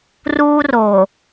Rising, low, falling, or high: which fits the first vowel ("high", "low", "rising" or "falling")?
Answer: high